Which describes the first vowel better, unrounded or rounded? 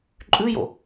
rounded